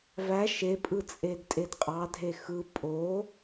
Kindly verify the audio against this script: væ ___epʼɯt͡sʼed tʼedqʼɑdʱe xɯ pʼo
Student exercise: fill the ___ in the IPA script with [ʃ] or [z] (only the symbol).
ʃ